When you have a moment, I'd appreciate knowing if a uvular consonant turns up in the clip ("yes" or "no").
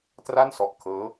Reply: no